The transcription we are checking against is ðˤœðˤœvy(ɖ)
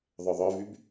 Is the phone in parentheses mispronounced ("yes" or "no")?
yes